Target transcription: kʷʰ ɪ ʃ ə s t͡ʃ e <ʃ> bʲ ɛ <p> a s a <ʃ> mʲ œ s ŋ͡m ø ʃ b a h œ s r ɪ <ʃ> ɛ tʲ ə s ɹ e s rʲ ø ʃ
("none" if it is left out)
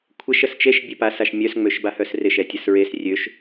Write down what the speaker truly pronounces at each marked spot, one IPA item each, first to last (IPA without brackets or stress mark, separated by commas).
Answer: ʃ, p, ʃ, ʃ